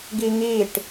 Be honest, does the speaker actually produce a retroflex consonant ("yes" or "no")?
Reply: yes